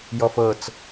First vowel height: mid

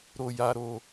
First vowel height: mid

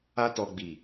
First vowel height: low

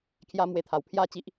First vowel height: low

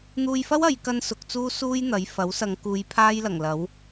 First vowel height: high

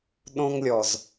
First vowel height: mid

